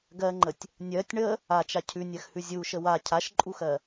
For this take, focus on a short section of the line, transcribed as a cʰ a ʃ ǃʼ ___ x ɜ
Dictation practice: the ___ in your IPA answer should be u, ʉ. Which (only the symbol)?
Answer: u